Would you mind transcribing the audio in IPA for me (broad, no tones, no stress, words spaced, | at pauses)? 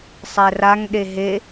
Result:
sˤɛraŋ ɗeɦe